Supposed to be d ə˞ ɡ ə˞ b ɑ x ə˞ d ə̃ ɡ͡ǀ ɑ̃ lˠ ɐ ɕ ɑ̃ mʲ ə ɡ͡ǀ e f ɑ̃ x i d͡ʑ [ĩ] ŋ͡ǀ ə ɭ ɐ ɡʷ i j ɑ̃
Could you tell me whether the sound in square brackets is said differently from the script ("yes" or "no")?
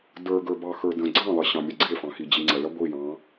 yes